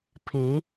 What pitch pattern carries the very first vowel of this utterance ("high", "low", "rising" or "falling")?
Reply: rising